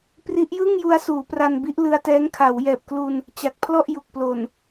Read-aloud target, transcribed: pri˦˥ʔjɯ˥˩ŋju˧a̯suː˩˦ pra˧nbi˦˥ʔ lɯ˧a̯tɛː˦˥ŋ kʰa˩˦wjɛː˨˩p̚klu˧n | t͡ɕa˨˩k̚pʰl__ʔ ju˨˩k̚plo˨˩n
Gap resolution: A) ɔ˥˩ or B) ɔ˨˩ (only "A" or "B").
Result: A